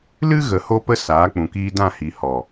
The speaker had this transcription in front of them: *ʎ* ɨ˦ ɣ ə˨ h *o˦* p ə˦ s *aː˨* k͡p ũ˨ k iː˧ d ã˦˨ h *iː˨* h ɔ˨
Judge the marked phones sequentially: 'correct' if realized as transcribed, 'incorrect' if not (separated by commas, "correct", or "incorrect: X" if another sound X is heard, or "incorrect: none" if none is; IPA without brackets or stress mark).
incorrect: l, correct, incorrect: aː˨˦, incorrect: i˨